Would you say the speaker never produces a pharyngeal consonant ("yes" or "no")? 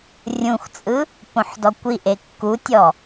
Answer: no